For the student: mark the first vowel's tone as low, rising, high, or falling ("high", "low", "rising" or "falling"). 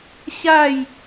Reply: falling